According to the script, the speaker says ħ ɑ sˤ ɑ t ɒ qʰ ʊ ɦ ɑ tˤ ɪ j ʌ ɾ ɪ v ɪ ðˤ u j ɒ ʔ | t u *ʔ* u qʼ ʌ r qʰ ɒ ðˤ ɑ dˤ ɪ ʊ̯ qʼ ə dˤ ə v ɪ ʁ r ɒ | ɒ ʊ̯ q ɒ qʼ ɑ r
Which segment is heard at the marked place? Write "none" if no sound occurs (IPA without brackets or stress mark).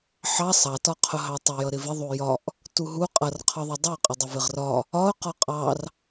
ɦ